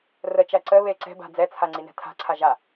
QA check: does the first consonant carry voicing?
yes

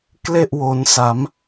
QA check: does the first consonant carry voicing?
no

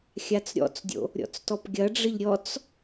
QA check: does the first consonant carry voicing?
no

